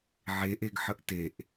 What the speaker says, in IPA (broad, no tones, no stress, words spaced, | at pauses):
ʕeʔeɡħəʔ teʔ